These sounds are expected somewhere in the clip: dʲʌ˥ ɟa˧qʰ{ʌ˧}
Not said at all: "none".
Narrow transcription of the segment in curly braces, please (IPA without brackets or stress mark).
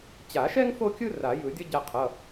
ʌ˩˧˩